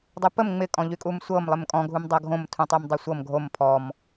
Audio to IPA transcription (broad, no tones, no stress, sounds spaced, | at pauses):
dˤ u p ə m ŋ͡m ɪ kʼ ɔ̃ ʎ y kʼ u m sʷ ɤ m lˠ ɪ m kʼ ɔ̃ ɡʱ u m dˤ ɤ ɡʱ õ m tʰ ũ tˤ y m dˤ y sʷ ɤ m ɡʱ o m pʰ ɔ m